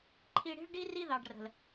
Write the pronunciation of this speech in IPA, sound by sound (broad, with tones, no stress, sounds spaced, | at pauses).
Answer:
ǃʰ i˧ ɽ i̤˦ ɭ ɖ i˦ r i˦ ð ɑ˨ ɖ r ə̤˨ l